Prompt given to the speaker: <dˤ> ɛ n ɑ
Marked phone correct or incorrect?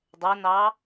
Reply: correct